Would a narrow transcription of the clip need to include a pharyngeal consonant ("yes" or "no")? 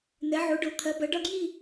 yes